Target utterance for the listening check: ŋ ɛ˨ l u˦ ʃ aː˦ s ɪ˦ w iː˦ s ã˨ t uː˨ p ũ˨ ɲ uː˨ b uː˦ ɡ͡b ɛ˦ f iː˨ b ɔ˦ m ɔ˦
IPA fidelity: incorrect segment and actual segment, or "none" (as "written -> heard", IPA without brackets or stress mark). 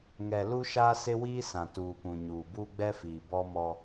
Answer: none